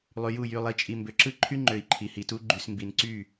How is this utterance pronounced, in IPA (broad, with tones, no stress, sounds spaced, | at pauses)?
lˠ y˨ j u˦˨ j y˨ lˠ i˨ t͡ʃʼ i˨ m b ø˨ ǁ ɯ˦ ǃʰ y˦ ŋ͡ǃ ø˨ i̯ ǃʰ i˨ h i˨ t u˦ ɡ͡ǃ y˨ s m b i˨ n ǀ y˦˨